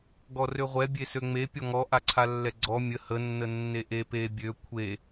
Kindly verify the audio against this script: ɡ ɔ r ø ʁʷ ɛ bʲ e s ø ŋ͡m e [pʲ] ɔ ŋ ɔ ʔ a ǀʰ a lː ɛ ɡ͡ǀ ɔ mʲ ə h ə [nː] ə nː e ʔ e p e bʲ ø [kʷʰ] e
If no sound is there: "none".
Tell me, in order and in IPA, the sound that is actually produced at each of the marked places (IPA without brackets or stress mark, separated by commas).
pʲ, nː, kʷʰ